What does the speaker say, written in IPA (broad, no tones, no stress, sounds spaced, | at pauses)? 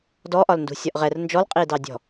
d ɔ ʔ ɒ l n d ṳ sʲ ɒ ʔ ʁ ɛ r n d͡ʒ ɔ l qʼ i d ɑ dʲ ɔ̤